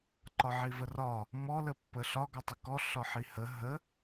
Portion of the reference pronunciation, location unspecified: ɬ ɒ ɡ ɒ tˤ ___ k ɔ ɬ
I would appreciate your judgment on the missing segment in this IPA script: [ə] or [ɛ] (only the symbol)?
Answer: ə